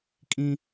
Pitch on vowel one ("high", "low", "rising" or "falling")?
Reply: high